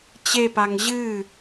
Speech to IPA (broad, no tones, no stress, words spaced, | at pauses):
t͡ɕepaŋ ʑɨ